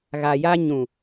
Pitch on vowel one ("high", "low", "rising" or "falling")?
low